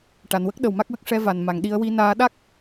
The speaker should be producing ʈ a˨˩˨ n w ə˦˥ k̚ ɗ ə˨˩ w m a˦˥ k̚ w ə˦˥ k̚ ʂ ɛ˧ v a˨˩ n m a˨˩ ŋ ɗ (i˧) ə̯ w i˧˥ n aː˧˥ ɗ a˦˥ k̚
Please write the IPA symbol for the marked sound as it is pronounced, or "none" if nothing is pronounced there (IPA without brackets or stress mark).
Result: i˧